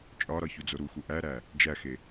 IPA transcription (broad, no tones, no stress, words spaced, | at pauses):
t͡ʃʼɒɾɒ çud͡zoɾuxu ʔæɾæ | d͡ʒæxe